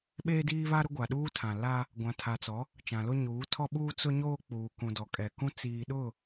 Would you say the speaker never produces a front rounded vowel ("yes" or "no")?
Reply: yes